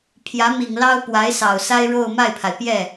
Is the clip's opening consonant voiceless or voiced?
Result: voiceless